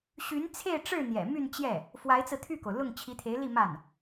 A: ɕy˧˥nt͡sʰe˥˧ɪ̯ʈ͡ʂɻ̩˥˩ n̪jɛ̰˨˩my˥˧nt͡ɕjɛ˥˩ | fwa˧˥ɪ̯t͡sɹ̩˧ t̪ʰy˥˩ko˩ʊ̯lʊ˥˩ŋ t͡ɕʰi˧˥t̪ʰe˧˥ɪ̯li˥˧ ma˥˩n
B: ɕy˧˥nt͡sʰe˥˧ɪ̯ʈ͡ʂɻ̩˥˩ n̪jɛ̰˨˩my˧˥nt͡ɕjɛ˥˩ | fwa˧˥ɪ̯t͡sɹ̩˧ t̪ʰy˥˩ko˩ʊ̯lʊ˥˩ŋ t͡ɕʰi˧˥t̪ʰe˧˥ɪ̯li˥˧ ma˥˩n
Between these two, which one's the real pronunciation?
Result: A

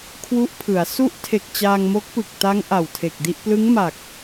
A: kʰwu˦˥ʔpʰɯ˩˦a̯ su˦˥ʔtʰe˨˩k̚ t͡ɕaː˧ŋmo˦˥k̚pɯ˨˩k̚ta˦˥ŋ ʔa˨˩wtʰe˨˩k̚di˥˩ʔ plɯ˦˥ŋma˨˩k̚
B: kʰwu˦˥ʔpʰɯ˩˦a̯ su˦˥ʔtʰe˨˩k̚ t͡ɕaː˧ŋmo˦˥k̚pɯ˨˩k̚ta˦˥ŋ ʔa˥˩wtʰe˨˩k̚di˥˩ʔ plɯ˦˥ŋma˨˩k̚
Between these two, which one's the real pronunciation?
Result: A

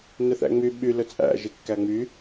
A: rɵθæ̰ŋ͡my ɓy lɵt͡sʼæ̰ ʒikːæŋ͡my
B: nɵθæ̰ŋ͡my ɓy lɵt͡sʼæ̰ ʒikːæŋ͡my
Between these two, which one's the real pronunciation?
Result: B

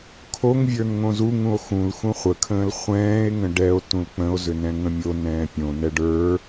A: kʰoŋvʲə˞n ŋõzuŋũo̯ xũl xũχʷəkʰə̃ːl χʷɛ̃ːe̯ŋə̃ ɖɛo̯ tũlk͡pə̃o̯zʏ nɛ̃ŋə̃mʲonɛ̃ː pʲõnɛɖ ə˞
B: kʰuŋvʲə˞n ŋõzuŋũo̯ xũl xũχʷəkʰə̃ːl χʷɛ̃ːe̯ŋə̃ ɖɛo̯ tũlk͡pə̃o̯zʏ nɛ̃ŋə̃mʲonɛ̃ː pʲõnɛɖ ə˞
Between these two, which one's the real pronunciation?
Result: A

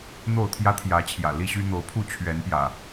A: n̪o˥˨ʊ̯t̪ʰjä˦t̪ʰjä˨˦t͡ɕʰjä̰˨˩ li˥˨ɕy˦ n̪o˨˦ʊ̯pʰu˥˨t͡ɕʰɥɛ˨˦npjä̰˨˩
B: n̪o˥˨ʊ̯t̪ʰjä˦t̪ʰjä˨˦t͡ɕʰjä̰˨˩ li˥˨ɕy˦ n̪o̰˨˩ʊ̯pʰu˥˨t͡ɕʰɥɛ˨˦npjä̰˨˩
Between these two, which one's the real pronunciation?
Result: A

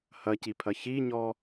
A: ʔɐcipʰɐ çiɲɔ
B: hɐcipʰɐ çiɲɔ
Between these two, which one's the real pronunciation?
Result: B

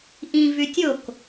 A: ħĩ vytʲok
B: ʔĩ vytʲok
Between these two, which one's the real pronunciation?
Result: B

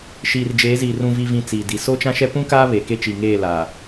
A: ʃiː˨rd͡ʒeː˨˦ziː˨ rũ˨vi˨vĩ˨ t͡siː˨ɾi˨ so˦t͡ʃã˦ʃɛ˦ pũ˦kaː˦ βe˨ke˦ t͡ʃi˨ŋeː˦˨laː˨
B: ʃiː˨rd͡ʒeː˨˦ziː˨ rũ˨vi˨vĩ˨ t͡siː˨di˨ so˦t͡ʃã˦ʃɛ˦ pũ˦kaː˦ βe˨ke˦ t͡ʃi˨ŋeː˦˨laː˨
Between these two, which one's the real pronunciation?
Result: B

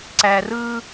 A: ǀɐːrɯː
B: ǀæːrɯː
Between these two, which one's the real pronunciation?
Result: B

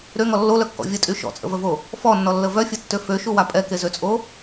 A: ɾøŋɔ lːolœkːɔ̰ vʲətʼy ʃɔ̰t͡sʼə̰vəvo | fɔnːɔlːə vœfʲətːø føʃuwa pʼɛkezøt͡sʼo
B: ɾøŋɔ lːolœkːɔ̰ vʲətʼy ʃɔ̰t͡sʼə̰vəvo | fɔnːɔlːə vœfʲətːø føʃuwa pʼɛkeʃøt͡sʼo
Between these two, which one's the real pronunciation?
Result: A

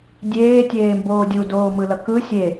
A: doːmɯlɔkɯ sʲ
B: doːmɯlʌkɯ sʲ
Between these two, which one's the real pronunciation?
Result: B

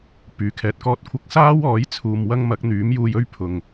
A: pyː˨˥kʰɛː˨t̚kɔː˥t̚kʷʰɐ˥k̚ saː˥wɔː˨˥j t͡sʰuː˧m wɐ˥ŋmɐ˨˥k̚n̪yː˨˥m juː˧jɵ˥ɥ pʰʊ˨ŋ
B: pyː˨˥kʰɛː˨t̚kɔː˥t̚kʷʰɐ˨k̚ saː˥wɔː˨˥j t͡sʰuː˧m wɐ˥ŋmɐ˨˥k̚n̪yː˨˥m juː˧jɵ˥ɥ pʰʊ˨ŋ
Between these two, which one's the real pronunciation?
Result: A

